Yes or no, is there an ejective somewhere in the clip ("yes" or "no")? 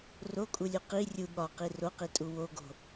yes